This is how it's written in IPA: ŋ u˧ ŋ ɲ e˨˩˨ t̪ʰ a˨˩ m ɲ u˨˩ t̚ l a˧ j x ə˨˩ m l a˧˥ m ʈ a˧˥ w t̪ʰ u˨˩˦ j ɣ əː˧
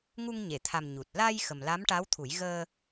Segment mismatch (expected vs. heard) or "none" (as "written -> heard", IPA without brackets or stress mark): none